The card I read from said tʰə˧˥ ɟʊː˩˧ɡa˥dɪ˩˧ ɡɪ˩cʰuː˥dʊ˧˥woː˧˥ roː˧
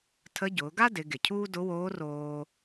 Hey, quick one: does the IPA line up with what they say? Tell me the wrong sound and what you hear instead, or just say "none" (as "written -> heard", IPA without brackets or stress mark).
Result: none